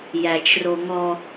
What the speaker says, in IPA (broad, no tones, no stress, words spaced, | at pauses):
jæt͡ʃroŋɔ